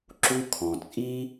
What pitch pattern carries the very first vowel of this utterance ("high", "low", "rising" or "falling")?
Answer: high